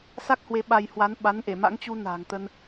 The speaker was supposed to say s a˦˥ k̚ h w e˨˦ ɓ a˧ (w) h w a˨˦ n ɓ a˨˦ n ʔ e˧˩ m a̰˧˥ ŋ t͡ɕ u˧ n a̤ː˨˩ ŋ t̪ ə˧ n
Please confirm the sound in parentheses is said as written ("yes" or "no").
no